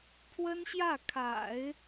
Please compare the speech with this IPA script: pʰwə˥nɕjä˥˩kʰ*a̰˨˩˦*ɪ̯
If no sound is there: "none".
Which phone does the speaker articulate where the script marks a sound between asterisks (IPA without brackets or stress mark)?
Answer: a̰˨˩˦